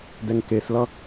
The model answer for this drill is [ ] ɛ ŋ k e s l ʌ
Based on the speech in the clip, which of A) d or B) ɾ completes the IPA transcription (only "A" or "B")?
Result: A